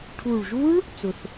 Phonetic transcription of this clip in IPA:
ʈʰ u˨˩ ɭ ʒ u˦˥ ɭ | t͡s ʊ˨˩ θ

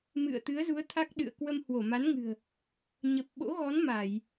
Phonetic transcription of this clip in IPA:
m ɨ̰˧˨ ə̯ t̪ ɨ˨˦ ə̯ z u˨˦ ə̯ t̪ʰ a˦˥ k̚ ɗ ɨ̰˧˨ ə̯ k w ə˧ m h w o˧˩ m a˨˦ n ŋ ɨ̤˨˩ ə̯ | ɲ ə˨˩ p̚ ɓ o̰˧˥ ɣ ɔ˨˦ n m a˧˩˨ j

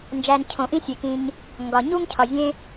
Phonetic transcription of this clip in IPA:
n d͡ʒ æ˨ n cʰ õ˩ ʔ ĩ˥ sʲ e˩ k ĩ˨ ɲ | ŋ ɡ ɒ˩ ɲ u˥ ŋ cʰ ɒ˩ zʲ ẽ˦

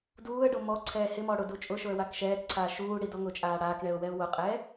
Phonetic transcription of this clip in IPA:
d uː ə̯ ɖ o m ɔ ǀʰ ɛː h ɪ m ɔ ɽ ʊ d u t͡ʃʼ ʊ ʃ o ə̯ w a k ʃ ɛː k ǀʰ aː ʃ uː ɽ i d ɔ ŋ ʊ t͡ʃʼ aː ɽ aː k ɳ ɛ ʊ̯ w ɛ ʊ̯ w ʊ qʼ ɛː

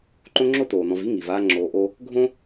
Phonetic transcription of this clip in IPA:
ǃ õ˥ ŋ͡ǁ o˥ t oː˩ n ɔ̃˨ v i˥ ŋ i˩ v aː˦ ŋ͡ǁ oː˨ ʔ o˦ | ɡʱ õ˥

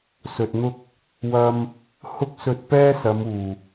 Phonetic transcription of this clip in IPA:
s ɵ˨ t̚ n̪ ʊ˥ k̚ | w ɐ˧ m | h ʊ˥ k̚ s ɵ˧ t̚ p ɛː˥ s ɐ˨˧ m uː˨˩

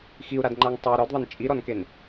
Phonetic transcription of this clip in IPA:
x i u̯ ɾ a d ŋ͡ǃ a ŋ tˤ ɤ ɾ ɔ d ðˤ ɤ n t͡ʃʼ i ɾ ɔ n k e n

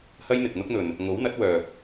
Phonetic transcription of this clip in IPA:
h ɐ˥ j n̪ ɪ˨ k̚ n̪ ʊ˥ k̚ n̪ ɵ˨ n | ŋ o˨˥ w n̪ ɐ˨˥ t̚ w œː˨ p̚

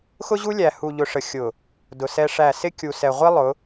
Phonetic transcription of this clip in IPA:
x ʊ˦ ʑ u˦ lʲ æ˨ h u˨ ʎ ʊ˨ ʂ ə˨ xʲ ʊ˨ | d ʊ˨ s ɛ˦ ʂ æ˦˨ s ɪ˦ kʲ u˨ s ɛ˨ ʁʷ i˦ lˠ ʊ˨˦

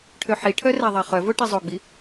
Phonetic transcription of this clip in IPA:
ʈʰ ø ħ i ʈʰ œ r æ ðˤ ɑ χ œ v o ʈ i zˤ o ɡ͡b i

